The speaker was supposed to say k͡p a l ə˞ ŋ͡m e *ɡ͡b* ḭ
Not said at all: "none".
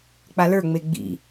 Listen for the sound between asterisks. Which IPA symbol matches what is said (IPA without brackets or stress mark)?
ɡ͡b